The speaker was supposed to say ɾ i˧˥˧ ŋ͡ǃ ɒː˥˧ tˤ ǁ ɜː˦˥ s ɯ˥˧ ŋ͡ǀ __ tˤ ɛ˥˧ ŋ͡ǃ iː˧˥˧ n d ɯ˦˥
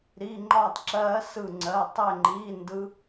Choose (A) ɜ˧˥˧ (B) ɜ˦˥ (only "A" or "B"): A